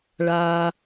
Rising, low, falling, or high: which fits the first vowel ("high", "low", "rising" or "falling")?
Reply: low